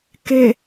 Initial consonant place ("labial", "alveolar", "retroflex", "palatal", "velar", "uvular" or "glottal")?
velar